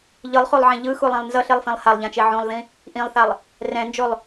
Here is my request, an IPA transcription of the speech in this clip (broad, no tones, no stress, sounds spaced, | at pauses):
ʎ ɯ lˠ χ u lˠ ʕ ẽ ʎ ɯ x u lˠ ɛ̃ lˠ n z ʌ ɬ e lˠ f ẽ lˠ h a lˠ ʎ ã t͡ʃ e ʕ ũ lˠ ð ĩ | ʔ ĩ lˠ θ a lˠ | r ɛ̃ n d͡ʒ o lˠ